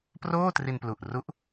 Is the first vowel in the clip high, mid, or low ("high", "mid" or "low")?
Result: mid